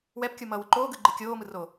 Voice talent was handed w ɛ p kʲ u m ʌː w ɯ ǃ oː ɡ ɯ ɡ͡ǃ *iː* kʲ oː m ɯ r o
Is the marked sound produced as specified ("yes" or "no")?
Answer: no